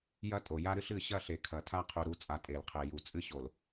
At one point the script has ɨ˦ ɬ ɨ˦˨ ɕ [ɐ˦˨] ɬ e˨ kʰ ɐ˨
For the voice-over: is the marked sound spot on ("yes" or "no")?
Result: yes